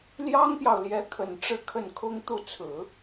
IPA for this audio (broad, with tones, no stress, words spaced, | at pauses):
ljɑ˥ŋpjɑ˨ʊ̯ljɛ˧˥ kʰə˨˩nʈ͡ʂɻ̩˥˧kʰə˥˩nkʰʊ˥ŋ t̪u˥˩t͡sʰɹ̩˨˩˦